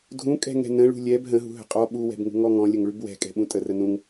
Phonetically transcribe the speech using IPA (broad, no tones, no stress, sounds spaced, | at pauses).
dʱ ũ kʼ ɛ̤ ŋ ɛ̤ n ə̃ ɭ ṳ lʲ ɛ b ɦ ə̃ ɦ ṳ ɦ ə̤ qʼ ɔ ɓ u w ɛ̤ b ŋ ṳ ŋ ɔ ŋ ɔ̃ lʲ ə ŋ ɭ ʉ b w ɛ̤ kʼ ɛ̤ ɓ ũ tʼ ə r ə n ũ ŋ